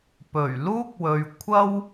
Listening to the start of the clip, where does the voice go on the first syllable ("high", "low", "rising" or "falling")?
low